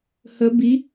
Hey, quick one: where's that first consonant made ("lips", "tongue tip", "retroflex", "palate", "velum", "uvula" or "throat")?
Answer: throat